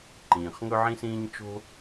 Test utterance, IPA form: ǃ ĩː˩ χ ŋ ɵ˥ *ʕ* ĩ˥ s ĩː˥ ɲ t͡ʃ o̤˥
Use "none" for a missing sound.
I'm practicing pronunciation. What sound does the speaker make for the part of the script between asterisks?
ʕ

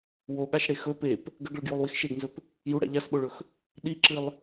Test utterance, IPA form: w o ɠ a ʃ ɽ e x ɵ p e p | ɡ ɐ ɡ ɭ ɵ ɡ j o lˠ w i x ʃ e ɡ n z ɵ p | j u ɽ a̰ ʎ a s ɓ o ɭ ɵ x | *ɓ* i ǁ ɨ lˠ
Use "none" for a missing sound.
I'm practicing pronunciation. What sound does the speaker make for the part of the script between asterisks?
ɗ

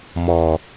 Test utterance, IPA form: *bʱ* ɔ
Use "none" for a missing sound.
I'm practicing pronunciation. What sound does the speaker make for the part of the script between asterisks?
m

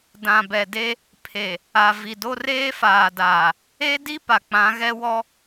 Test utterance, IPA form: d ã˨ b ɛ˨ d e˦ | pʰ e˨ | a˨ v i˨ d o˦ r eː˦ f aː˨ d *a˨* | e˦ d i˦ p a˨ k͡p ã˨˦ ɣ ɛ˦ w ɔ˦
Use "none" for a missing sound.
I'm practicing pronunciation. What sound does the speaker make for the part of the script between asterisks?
aː˨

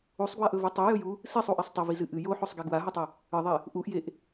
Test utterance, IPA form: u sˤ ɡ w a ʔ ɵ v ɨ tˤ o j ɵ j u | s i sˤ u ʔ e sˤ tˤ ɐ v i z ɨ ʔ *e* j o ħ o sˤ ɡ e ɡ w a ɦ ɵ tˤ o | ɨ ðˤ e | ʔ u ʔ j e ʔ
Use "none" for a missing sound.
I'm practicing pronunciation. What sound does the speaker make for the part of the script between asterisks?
ɨ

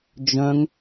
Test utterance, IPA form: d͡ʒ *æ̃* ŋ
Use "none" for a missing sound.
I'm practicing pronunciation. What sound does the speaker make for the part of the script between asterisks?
œ̃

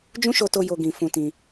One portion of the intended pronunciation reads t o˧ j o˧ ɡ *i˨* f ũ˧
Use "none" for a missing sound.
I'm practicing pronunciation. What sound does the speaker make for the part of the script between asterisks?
ĩ˨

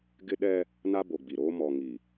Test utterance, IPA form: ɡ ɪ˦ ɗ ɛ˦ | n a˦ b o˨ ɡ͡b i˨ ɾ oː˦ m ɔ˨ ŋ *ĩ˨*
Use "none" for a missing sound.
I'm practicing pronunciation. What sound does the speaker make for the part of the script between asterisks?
i˨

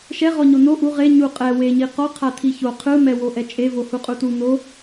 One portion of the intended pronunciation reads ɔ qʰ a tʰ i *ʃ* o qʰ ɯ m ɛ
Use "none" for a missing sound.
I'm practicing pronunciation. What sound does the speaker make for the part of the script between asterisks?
ç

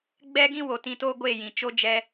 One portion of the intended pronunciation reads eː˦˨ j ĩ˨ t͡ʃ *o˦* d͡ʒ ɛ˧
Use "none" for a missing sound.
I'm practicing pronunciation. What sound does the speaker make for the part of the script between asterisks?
o˦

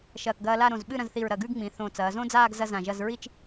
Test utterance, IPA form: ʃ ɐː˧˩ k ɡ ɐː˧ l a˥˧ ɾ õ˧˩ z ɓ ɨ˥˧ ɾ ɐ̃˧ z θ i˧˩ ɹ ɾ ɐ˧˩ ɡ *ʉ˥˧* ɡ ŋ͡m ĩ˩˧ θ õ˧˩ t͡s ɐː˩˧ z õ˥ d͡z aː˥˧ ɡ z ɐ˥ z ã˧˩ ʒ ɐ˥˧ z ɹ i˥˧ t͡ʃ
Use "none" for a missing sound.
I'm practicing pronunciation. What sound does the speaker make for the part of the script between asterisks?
ʉ˥˧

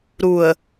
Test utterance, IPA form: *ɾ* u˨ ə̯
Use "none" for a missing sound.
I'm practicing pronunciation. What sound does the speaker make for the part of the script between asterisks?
ɾ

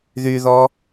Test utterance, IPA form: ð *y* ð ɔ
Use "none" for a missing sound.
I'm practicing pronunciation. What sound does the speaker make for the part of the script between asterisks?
y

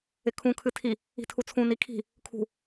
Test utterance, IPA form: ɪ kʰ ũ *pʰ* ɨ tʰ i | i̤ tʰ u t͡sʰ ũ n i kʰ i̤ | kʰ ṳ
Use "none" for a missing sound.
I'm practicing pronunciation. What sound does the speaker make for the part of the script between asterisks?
kʰ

